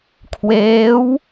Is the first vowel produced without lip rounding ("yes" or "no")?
yes